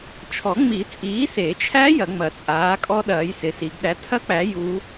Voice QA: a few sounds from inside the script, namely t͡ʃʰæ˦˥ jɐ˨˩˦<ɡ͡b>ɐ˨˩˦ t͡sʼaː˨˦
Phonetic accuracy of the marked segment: incorrect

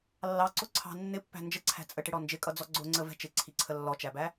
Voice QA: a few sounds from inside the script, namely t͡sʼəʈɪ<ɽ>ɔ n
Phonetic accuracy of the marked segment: correct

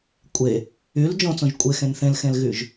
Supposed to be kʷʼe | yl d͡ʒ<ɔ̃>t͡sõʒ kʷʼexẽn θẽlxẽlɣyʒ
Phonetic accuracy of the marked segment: incorrect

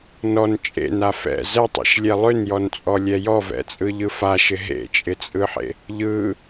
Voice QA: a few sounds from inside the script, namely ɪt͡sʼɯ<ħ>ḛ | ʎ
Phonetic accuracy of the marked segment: correct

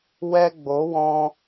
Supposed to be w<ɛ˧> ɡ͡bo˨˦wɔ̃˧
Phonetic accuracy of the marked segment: correct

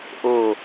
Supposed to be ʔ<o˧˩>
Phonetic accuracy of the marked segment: correct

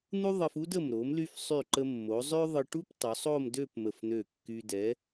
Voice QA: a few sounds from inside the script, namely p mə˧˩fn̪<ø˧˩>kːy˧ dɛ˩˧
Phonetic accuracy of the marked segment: correct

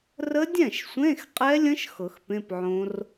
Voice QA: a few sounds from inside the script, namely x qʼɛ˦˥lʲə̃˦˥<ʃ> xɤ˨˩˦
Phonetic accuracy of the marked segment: correct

